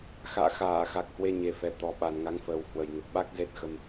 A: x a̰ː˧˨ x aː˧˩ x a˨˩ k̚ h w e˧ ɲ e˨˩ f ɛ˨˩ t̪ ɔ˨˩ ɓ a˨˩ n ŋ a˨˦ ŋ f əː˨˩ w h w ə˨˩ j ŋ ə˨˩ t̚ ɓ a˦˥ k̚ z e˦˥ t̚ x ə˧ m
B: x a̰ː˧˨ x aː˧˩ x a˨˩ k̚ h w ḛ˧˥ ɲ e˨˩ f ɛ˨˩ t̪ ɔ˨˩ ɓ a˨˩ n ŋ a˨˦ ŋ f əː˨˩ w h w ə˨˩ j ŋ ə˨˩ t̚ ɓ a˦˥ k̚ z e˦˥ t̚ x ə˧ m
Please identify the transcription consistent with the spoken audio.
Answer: A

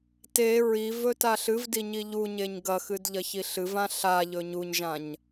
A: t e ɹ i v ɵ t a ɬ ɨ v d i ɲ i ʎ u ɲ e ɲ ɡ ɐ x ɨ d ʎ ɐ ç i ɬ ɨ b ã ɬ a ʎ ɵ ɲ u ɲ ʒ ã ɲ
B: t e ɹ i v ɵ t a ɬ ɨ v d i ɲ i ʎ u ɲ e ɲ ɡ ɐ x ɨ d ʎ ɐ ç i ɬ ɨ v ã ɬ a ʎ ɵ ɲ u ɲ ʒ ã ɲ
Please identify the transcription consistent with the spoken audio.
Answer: B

